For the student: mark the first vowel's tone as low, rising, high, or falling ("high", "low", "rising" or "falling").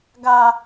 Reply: high